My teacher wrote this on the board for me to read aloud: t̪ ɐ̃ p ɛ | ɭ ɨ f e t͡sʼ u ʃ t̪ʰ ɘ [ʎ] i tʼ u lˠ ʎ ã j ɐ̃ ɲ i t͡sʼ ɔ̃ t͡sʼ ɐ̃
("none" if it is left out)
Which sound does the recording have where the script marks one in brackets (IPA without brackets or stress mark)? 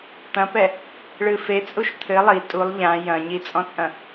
lˠ